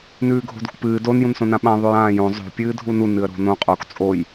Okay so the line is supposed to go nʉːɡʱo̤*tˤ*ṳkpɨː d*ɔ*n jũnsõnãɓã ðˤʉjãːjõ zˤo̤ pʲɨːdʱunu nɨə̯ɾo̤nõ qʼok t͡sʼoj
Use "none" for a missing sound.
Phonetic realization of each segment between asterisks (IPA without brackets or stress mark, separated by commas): d, o